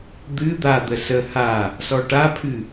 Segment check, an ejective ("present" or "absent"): absent